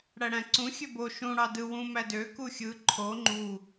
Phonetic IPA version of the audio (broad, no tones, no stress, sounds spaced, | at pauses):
ɽ æ ɽ æ̃ ǀ ũ xʲ ø b o ʃ ũ ɽ ɑ d ɯ w ũ m æ d ø k u xʲ ɯ ǃʰ o ŋ͡ǃ u